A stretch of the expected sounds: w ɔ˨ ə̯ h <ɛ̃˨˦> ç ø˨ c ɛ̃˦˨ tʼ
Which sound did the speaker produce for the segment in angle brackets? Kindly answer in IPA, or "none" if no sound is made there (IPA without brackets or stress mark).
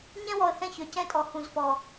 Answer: ɛ̃˦˨